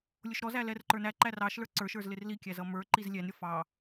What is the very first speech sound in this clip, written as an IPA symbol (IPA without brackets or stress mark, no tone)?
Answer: lʲ